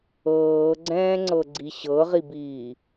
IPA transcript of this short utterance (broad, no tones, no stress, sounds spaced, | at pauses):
ɤː ɡ͡ǀ ɛ̃ː ŋ͡ǀ ɤ ɡ͡ǀ i ɕ ɤ ʁ i b iː